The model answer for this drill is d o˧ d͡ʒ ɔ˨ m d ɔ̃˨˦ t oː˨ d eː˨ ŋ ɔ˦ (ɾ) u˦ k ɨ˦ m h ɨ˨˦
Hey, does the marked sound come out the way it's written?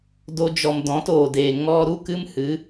yes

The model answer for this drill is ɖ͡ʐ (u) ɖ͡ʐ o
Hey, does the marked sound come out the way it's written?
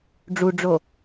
yes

